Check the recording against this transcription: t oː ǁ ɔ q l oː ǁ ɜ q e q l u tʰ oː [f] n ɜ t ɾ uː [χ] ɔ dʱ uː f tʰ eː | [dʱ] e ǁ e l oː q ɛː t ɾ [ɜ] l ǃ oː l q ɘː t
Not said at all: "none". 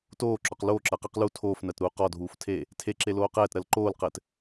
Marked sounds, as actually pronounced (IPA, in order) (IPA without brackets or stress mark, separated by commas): f, q, tʰ, ɜ